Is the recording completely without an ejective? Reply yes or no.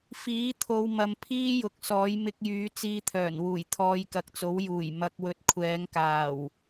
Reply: yes